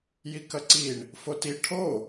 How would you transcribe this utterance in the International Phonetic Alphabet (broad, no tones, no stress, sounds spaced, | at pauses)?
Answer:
j i k ɐ ǀ i ɳ | f o t i ʈʰ o